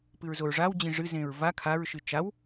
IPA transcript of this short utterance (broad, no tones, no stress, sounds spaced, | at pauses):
p ɨ ɹ z o ɹ ʐ a w d͡ʑ ĩ ʐ ɨ z ẽ ɹ v a kʰ a ɹ ʃ ɨ t͡ʃ a w